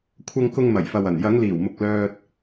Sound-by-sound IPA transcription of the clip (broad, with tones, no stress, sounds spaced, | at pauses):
kʷʰ ɐ˧ ŋ k ʊ˧ ŋ m ɐ˨˩ j f ɐ˨ w ɐ˨˩ n j ɐ˨˧ ŋ l iː˨˩ w m ʊ˨ k̚ l œː˧ t̚